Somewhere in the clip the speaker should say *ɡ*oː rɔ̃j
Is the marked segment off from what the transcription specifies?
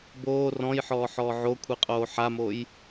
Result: yes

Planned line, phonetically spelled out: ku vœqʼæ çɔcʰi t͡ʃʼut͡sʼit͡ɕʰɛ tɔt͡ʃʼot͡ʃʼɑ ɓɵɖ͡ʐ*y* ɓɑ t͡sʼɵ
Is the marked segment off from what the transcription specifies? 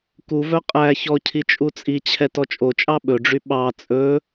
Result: no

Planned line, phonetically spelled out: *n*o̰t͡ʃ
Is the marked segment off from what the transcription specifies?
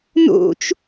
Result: no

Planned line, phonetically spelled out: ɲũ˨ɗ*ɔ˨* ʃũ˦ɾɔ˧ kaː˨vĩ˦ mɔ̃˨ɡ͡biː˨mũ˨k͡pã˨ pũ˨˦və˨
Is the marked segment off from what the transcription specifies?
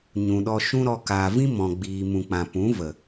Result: yes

